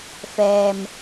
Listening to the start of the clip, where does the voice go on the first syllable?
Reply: low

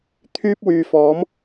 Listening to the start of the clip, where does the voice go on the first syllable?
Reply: high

